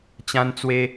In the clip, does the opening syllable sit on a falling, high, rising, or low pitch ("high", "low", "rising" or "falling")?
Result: high